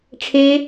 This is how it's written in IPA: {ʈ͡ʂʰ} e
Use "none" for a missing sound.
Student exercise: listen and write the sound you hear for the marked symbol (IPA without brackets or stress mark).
ʈ͡ʂʰ